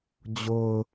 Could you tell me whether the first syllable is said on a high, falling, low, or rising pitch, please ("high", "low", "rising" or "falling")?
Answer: low